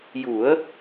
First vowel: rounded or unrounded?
rounded